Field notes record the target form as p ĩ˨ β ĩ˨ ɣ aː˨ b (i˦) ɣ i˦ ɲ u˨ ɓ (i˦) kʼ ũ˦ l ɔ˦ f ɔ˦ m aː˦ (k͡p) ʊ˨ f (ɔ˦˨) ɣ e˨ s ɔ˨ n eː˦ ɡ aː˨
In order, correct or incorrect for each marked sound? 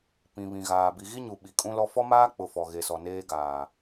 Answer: incorrect: i˨, incorrect: i˨, correct, incorrect: ɔ˨

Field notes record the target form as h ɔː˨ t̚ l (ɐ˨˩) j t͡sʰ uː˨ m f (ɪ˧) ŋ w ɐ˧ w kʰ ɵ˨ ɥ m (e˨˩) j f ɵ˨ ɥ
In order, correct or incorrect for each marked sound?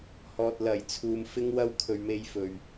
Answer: correct, correct, incorrect: e˧

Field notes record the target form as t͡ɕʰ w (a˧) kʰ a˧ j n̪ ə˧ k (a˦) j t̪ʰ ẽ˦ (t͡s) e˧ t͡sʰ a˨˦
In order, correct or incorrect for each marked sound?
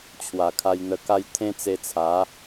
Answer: incorrect: a˨˩, correct, correct

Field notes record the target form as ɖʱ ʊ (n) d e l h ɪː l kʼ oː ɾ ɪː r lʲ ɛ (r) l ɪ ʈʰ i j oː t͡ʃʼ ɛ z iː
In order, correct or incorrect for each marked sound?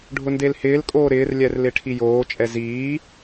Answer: correct, correct

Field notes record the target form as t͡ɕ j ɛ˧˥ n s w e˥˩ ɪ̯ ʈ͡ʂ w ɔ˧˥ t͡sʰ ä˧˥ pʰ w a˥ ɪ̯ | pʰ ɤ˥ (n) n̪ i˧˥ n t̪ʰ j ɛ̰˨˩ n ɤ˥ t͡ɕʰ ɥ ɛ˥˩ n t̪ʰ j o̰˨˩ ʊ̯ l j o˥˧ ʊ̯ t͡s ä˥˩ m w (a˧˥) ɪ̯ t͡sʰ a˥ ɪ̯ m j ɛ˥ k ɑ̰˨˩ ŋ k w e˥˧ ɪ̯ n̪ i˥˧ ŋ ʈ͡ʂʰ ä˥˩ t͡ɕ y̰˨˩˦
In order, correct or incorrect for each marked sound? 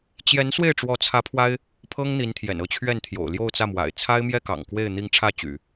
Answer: incorrect: ŋ, incorrect: a̰˨˩

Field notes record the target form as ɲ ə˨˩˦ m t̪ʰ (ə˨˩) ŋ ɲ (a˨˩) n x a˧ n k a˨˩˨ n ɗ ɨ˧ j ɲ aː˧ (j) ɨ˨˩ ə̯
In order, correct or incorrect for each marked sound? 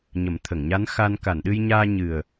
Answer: incorrect: ə˨˩˨, incorrect: a˧˥, incorrect: ɲ

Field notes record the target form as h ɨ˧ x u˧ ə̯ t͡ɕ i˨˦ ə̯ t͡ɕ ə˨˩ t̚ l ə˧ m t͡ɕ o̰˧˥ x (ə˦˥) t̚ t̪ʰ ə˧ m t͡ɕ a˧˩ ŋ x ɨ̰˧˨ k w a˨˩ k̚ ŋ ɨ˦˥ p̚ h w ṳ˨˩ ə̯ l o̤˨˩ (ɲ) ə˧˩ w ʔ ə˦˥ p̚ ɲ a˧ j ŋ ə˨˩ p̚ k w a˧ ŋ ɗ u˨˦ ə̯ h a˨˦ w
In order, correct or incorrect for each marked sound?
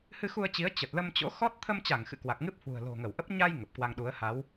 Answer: incorrect: ɔ˦˥, incorrect: ŋ

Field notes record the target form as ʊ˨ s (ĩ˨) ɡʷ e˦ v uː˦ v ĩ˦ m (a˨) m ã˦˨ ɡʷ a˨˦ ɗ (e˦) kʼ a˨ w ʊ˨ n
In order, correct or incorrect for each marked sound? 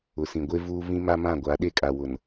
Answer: correct, incorrect: a˦, correct

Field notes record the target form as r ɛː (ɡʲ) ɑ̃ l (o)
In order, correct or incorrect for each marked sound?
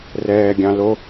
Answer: correct, correct

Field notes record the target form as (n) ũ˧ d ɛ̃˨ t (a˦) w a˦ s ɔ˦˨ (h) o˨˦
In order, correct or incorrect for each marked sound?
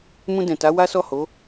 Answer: incorrect: m, incorrect: a˨˦, correct

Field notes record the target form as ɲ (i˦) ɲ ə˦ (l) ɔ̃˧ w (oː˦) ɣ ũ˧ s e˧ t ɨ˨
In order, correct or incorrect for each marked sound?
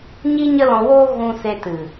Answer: correct, correct, correct

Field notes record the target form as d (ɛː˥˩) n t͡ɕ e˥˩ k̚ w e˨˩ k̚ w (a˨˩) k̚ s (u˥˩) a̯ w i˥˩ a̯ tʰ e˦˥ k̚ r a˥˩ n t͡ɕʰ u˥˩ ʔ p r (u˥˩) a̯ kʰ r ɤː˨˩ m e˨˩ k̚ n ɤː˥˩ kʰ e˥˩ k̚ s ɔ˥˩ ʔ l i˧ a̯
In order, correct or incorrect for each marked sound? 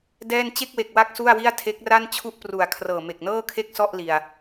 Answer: correct, incorrect: a˦˥, correct, incorrect: u˨˩

